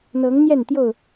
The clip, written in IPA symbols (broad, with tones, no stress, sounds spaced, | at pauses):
n̪ ɤ˨˦ ŋ n̪ j ɛ˥˨ n t̪ j o˥˨ ʊ̯